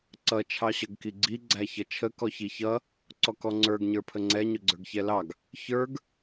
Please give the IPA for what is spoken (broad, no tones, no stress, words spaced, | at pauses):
ǀʌ t͡ʃʰɑɕʌɡkiɡ͡ǀi ɡ͡ǀæçʌt͡ʃʰə kɔçiçʌ | ǀɔkɔŋ͡ǀə˞ɡ ɲə˞pʰəŋ͡ǀɛ ɲʊɡ͡ǀə˞ɡçɛlɑɡ | çə˞ɡ